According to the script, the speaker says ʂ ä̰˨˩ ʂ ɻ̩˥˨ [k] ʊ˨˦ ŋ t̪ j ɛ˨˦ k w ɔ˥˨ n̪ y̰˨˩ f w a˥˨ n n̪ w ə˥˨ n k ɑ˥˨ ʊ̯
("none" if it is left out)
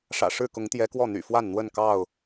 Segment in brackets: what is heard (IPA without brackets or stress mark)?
k